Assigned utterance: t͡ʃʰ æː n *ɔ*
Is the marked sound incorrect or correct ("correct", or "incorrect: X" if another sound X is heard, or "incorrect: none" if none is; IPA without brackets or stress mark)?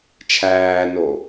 incorrect: o